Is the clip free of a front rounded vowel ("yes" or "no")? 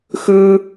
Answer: yes